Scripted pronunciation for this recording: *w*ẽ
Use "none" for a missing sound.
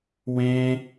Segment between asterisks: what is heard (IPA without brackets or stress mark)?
w